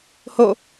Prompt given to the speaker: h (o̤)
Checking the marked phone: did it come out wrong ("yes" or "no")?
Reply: yes